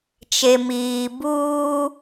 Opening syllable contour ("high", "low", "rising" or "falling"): low